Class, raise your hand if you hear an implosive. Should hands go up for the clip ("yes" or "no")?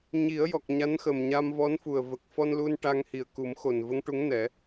no